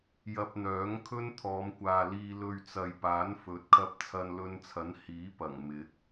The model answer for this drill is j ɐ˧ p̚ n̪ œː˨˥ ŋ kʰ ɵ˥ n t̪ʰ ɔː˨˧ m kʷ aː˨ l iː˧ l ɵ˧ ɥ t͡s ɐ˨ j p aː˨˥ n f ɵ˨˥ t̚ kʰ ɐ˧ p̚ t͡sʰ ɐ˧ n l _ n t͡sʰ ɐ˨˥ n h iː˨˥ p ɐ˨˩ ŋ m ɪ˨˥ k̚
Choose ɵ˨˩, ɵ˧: ɵ˧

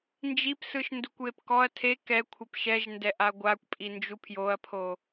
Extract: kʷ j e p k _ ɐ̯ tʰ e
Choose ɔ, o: ɔ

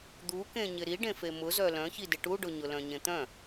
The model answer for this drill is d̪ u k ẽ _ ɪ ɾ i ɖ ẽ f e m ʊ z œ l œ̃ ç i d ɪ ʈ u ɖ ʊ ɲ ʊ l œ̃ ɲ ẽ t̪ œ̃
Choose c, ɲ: ɲ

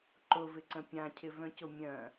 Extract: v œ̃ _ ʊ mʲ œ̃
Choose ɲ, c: c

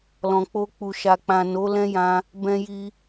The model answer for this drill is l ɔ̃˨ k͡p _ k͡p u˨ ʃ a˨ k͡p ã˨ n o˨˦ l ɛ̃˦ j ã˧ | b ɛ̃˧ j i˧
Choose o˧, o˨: o˧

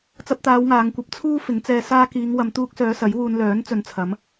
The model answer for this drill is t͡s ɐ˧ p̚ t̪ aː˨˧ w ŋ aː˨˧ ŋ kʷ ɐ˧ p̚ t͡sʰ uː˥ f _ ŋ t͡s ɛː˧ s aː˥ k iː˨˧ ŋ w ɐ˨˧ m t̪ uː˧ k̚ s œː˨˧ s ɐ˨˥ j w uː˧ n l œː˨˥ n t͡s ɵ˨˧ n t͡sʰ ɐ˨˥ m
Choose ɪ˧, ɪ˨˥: ɪ˨˥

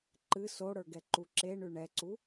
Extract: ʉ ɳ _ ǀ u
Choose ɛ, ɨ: ɛ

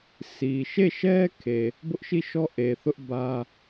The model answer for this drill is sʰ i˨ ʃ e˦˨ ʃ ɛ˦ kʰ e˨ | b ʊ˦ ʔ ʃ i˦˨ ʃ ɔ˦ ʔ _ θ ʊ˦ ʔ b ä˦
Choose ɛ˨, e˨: e˨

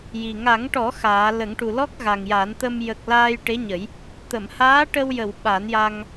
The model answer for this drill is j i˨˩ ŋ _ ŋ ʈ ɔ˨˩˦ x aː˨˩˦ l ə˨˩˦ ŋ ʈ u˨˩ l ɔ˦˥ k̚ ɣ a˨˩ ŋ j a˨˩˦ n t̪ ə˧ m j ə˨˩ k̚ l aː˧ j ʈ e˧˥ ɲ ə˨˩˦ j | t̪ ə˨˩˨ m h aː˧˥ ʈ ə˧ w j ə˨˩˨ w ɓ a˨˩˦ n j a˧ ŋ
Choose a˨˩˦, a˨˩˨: a˨˩˦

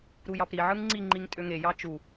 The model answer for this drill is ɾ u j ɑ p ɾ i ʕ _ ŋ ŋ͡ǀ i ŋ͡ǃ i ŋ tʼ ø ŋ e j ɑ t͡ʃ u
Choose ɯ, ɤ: ɯ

